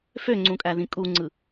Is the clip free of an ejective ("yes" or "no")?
no